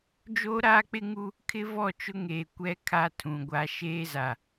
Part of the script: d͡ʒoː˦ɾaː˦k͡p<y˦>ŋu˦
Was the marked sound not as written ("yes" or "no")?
yes